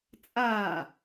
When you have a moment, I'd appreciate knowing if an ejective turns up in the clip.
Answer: yes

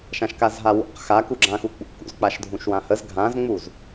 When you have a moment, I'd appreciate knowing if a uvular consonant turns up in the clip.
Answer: yes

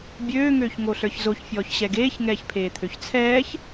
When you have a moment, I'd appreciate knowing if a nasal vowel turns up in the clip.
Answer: no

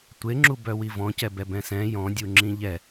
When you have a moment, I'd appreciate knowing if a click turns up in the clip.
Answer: yes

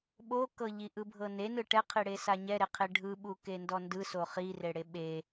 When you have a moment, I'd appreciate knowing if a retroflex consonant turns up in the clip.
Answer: yes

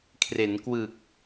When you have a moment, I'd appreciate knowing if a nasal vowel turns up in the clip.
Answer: no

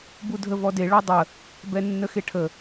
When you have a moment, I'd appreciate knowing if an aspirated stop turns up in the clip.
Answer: yes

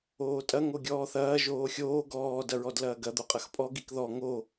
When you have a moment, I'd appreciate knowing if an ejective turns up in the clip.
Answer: yes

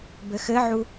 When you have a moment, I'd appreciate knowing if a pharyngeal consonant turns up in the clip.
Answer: yes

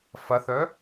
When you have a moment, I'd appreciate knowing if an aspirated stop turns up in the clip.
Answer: no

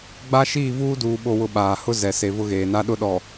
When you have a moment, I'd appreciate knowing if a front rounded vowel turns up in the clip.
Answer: no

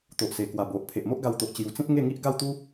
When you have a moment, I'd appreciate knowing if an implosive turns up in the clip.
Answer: no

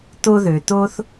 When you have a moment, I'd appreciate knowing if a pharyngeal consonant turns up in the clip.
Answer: no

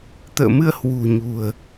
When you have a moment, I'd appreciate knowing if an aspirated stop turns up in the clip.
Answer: no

